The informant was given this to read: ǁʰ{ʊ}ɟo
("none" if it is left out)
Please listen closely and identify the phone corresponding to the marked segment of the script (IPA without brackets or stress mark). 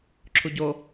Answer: u